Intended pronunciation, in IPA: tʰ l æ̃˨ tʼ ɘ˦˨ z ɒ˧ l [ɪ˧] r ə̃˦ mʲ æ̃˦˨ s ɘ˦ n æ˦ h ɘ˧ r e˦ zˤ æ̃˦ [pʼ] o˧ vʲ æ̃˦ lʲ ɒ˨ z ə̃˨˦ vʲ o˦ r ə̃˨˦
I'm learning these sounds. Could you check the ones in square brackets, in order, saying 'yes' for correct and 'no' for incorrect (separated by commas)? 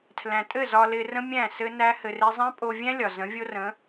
yes, yes